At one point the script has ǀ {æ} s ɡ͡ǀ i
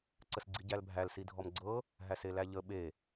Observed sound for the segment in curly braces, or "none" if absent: ə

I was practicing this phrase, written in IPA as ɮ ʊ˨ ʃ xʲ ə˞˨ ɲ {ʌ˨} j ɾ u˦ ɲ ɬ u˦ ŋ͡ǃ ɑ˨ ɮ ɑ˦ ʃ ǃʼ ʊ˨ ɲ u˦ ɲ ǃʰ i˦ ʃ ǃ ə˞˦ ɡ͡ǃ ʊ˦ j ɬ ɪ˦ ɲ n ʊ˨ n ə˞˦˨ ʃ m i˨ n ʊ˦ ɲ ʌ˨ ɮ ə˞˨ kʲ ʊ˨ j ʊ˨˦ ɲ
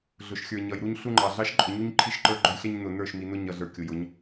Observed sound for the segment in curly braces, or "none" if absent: ʌ˨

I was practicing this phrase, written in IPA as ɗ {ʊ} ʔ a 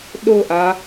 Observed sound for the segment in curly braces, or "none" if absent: ʊ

